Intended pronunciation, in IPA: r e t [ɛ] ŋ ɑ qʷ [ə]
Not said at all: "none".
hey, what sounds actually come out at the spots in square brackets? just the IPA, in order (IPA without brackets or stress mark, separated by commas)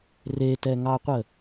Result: ɛ, ə